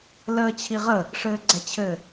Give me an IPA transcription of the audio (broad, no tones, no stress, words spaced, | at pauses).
ləːt͡ɕʰiʁə | ʂɘːɡ͡ǀɛt͡ɕʰɘ